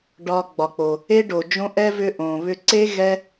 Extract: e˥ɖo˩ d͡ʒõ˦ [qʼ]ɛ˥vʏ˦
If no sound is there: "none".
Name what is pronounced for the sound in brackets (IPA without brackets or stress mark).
ʔ